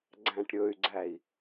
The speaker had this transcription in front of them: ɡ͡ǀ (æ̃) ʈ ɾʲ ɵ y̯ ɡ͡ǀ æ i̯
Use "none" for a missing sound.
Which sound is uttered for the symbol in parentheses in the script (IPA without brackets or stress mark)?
æ̃